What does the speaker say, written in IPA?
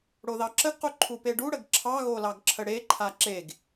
ɽ o ð ɑ ǁ ə ɡ q u ǃʰ u p e ɖ u ɽ ə ɡ ǁʰ ɑ ɣ o l ɑ ɡ ǁʰ ə ɽ e ǃʰ a ǁ e ɡ

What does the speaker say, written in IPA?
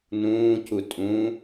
n ũː c u tʼ ũ

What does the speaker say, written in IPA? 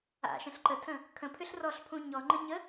a̰ ʃ ə̃ ɬ ǃ ə tʰ ə̃ | kʰ ə̃ pʰ ʏ ɬ r ɔ ɬ pʰ ũ ɲ ɔ ŋ͡ǃ ə̃ ɲ ə

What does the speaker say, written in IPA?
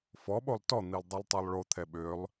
f ɔ ɓ o lˠ t ɔ n̪ i lˠ dˤ œ lˠ tˤ i lˠ ɭ o t̪ʰ ɛ ɓ ø lˠ

